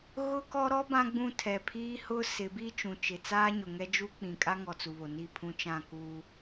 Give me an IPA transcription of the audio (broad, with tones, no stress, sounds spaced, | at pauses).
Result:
ɣ ʊ˦ k ɔ˦ ɾ ɔ˦ b ã˦ ɡ͡b ũ˦˨ tʰ ɛ˨ pʰ iː˦ h ʊ˦ s ɪ˨˦ b i˦ t͡ʃ ũ˨ t͡ʃ ɪ˨ t͡s aː˦ ɲ ʊ˨ ŋ ɛ˦ d͡ʒ u˦ k͡p ĩ˨ kʼ a˦ ŋ ɔ˨ t͡s u˨ β o˨ n i˦˨ pʰ ũ˦ t͡ʃ ã˦˨ k uː˦